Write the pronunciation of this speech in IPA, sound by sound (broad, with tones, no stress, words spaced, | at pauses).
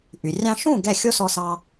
ʔy˩ rʲɑ̃˧ʃũ˥˩ ɡɛ˥˩xʲo˥sɔ˧sɑ˧